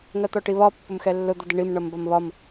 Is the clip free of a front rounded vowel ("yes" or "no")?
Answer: yes